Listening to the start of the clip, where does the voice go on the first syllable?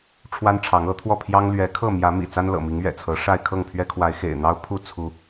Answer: high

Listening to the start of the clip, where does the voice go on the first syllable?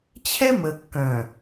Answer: high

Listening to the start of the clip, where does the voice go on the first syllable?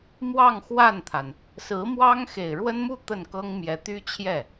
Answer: falling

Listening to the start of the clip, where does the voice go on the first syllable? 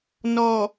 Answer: low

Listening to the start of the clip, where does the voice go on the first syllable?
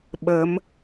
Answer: rising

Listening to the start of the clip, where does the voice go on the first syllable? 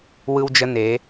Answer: high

